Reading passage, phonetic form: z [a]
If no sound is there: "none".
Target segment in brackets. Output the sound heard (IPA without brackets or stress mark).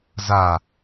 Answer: a